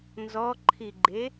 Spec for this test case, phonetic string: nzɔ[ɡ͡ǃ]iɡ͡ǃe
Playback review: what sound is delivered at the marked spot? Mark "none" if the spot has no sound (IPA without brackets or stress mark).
ǃʰ